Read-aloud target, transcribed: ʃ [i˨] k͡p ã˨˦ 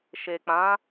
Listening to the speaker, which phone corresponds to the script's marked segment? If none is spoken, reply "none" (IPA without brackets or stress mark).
e˨